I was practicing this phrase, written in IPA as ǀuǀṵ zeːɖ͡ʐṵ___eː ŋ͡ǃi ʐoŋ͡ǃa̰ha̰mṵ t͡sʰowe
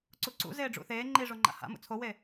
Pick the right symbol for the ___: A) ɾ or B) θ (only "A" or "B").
B